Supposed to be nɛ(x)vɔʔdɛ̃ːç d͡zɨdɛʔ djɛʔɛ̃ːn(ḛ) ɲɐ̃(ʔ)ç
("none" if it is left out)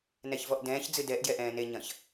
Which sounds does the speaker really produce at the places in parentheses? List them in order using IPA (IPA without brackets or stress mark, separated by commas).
ç, e, none